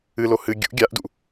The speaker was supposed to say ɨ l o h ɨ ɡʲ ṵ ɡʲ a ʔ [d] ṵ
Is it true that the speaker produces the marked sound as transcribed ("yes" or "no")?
yes